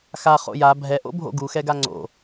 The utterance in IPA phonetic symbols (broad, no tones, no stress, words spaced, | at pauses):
xa χo̰ja bʱɛʔo̰bʱo̰ ɡuxɛɡa ŋ͡ǀo̰